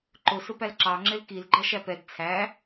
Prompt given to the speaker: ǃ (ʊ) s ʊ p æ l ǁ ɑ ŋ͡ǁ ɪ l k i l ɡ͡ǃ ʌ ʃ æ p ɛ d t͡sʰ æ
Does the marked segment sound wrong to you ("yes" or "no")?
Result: no